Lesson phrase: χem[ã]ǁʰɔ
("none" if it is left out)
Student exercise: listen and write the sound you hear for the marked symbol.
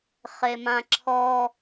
ã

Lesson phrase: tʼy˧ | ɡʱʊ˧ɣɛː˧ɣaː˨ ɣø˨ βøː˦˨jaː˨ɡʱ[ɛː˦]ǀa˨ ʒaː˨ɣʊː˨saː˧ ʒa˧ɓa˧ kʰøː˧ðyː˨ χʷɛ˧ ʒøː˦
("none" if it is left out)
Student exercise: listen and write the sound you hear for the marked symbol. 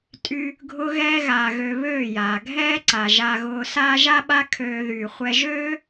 ɛː˦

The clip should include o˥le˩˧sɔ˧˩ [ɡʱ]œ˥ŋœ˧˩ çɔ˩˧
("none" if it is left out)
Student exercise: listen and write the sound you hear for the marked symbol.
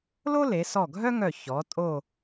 ɡʱ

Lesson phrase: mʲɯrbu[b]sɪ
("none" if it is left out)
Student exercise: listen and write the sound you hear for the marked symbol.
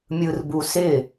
none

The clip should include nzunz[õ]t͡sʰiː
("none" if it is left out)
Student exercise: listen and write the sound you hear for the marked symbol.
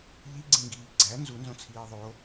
õ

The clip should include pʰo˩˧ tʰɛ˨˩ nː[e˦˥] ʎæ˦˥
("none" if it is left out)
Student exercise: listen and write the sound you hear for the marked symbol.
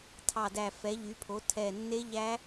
e˦˥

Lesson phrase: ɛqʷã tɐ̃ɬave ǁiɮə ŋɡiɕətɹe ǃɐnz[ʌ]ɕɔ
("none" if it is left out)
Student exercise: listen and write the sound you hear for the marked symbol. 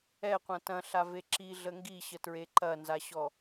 a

